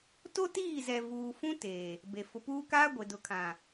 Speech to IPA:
t o˦ t iː˦˨ z ɛ˨ v uː˨ f ũ˦ t eː˨ | b e˨ f ʊ˨ p uː˦ k aː˦ ɡʷ e˨ d ʊ˨ kʰ ã˨

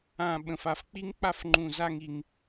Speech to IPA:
ã˧ ɓ ə̃˨ f a˧ f k͡p i˦ ŋ k͡p a˧ f ŋ͡ǃ ũ˨ z a˧ ŋ i˦ ŋ

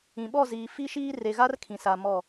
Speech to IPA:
ĩ˨ ɓ ɔ˦˨ z iː˨ f i˦ ʃ iː˦ r e˨ ɣ a˦ r kʰ ĩ˨ s a˨ m ɔ˦˨

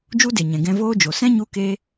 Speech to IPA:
d͡ʒ u˦ d e˨ ɲ ɛ̃˨ ɡ ɛ̃˧ v oː˦ d͡ʒ o˨ s ɛ̃˦ ɲ u˧ k e˧

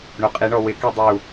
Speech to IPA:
ɳ o qʼ i ɳ ɔ w ɪ k i dˤ u

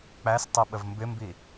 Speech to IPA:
k͡p æ s tˤ i ɓ ə v m b ɪ m b i

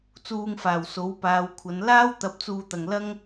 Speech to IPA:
t͡s uː˧ ŋ f aː˨˩ w s o˨˥ w p aː˨˧ w kʷʰ ɐ˨˧ n l aː˥ w t̪ ɐ˨˥ p̚ t͡s uː˨ t̪ ɐ˨ ŋ l ɐ˥ ŋ

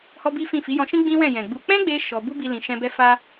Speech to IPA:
h ɔ˦ b i˦ f ĩ˦˨ f i˨˦ j ɔ̃˧ ʃ ĩ˦ ɡ͡b ĩ˦ w ɛ̃˦˨ j ɛ̃˨ ɡ͡b u˧ k͡p ɛ̃˦ ɡ͡b e˧ ʃ ɔ˧ b u˦ b i˧ l ĩ˧ ʃ ɛ̃˦ b ɛ˦ f a˦

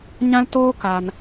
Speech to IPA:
ɲ ã˦ l t oː˦ k a˧ n

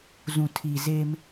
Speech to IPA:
z ũ˨ tʰ iː˨ z e˦ m

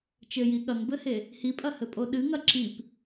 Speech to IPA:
t͡ʃ ɘ j i ɠ ɐ ŋ b ɘ h e | h i pʼ ɐ h ɘ pʼ o ɗ ɨ ŋ ɐ ǁ i p

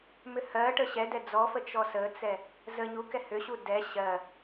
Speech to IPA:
m ʏ h ɜ ʈ ə ɕ ɛ d ɛ d͡z ɔ f ə t͡ʃ ɔ s ə t͡s ɛ | z ə ɲ u k ɛ h ʏ ɕ u d ɛ ɕ ɜ

